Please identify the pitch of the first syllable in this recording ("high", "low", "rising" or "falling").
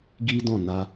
high